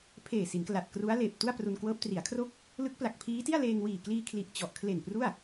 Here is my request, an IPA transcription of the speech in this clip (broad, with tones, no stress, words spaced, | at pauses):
pʰeː˨˩si˩˦nkla˨˩t̚ kru˦˥a̯leː˨˩p̚tu˥˩a̯ pru˧nkwɤː˦˥p̚ tri˩˦a̯kʰro˦˥k̚ | lɯ˦˥k̚pla˨˩k̚pʰiː˦˥ti˥˩a̯ leː˧ŋwiː˨˩kliː˧kʰli˨˩ʔ t͡ɕɔ˨˩ʔkʰle˨˩n pru˥˩a̯